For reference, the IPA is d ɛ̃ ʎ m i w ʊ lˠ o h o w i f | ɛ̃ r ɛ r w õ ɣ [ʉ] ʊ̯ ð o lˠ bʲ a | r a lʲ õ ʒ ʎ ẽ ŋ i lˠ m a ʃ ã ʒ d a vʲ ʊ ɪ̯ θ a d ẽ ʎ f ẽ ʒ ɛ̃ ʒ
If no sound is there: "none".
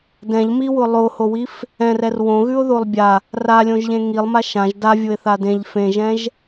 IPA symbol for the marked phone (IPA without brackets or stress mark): ʉ